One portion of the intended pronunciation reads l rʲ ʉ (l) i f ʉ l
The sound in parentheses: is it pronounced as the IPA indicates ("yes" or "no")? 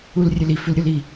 yes